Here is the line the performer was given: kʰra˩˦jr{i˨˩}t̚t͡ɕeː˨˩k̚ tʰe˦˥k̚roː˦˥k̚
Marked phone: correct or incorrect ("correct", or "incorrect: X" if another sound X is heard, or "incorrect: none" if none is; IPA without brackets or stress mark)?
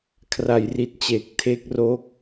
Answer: correct